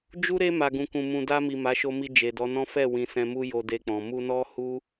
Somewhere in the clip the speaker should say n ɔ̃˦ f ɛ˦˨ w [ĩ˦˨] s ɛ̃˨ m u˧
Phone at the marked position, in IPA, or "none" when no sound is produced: ĩ˨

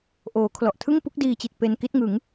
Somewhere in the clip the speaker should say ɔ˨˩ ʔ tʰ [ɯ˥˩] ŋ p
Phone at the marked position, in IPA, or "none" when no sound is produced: ɯ˥˩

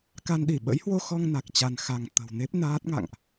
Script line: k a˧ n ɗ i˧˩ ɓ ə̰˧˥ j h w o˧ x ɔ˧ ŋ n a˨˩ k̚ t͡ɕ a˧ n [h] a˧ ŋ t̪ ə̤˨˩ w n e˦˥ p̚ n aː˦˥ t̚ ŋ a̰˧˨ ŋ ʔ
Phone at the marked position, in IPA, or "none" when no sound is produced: x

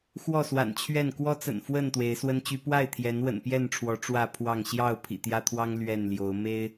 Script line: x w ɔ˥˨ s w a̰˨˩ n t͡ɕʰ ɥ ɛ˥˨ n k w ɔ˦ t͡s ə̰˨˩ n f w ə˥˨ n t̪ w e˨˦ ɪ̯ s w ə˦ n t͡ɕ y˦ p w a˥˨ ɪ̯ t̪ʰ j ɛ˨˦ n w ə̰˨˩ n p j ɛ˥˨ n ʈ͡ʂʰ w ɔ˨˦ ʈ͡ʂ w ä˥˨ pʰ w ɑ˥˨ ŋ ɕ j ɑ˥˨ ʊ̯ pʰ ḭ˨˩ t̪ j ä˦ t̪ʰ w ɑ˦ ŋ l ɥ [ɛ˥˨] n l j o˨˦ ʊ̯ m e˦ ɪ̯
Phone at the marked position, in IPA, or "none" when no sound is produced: ɛ˥˨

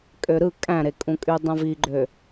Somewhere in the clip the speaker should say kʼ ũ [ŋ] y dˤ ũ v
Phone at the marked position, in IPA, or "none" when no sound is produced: kʼ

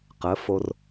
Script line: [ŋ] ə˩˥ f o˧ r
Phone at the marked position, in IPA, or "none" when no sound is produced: q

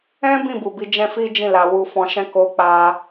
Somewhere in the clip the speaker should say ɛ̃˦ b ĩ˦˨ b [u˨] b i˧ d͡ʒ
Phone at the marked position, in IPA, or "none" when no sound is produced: u˨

